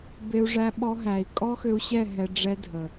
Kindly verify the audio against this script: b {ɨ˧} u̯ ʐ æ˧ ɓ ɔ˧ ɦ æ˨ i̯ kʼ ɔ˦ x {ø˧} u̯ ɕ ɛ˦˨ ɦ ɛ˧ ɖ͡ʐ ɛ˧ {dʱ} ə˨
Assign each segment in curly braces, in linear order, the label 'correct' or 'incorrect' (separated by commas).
incorrect, correct, correct